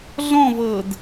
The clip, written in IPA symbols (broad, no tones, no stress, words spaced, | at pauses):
ɮɔ̃ vɤd